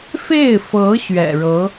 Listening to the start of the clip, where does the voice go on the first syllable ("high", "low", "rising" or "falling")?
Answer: falling